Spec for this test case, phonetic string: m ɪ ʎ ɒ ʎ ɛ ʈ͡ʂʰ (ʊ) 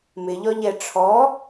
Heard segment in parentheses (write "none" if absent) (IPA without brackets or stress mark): ɔ